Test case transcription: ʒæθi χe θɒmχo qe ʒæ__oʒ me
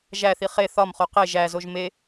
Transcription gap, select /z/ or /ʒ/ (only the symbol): z